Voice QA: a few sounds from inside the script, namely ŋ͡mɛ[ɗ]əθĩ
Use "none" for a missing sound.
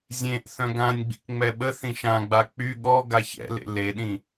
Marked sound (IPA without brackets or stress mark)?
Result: ɓ